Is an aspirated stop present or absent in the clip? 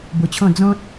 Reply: present